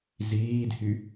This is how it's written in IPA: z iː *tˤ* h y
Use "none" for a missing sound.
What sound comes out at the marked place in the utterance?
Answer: d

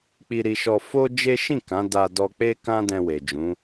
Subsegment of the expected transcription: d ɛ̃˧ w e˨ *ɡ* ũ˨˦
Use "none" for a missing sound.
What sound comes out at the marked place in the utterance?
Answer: d͡ʒ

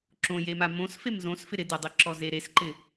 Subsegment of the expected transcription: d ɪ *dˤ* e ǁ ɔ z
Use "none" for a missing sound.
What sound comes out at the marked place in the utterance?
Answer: dˤ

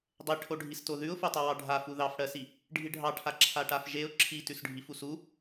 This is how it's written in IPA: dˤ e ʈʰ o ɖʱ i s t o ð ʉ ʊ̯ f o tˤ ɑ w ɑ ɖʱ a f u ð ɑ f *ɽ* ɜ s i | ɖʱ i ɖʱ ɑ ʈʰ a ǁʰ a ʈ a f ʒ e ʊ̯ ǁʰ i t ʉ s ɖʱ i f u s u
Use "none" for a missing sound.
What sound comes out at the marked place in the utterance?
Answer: ɽ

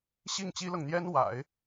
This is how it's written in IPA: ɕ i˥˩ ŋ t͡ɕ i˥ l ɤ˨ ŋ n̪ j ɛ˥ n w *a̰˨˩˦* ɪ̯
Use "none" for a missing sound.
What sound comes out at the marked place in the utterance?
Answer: a̰˨˩˦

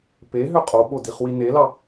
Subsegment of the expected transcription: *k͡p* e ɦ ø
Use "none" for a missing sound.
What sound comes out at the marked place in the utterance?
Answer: p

